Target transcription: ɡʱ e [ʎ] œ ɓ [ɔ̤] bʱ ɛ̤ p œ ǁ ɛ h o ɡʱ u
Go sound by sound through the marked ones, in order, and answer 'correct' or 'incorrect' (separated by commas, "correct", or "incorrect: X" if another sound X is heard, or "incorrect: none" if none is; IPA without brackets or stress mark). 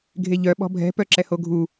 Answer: correct, correct